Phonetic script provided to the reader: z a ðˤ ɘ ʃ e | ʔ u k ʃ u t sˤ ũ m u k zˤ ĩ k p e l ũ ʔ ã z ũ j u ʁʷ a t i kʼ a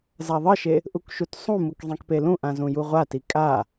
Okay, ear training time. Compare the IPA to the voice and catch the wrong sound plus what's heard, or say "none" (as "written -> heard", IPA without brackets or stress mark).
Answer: none